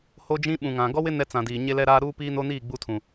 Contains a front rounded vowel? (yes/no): no